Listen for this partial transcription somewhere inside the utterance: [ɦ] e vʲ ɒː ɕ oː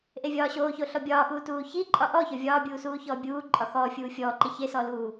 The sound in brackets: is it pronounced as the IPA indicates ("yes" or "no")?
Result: no